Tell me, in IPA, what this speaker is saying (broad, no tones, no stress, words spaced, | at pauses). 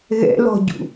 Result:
ɣɛ̰lɔ̤ɟṵ